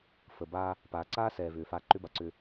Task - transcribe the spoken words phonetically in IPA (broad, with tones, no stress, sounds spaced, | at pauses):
f ə˨ b a˦ | p aː˨ ǀ aː˦ s ɛː˨ v ʏː˨ f a˨ ǃ ʏ˦ b a˨ ǀ ʏ˦